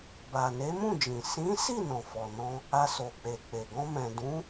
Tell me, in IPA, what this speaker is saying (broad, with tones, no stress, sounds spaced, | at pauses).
b a˨ n e˨˦ m ũ˦˨ d͡ʒ ĩ˨ s ĩ˨˦ s i˦˨ n ɔ̃˨ f ɔ˨ n ɔ̃˧ | a˧ s o˨ k͡p e˨ k͡p e˨ ɡ ɔ̃˧ m ɛ̃˨ d ũ˨˦